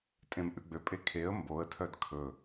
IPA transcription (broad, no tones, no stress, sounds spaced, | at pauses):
tʼ ẽ m ʔ ʉ ɡ͡b ø pʼ e kʰ e ə̯ m b o ə̯ tʰ œ d kʰ ɵ